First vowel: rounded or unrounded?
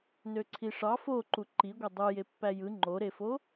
rounded